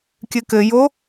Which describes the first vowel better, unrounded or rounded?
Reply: unrounded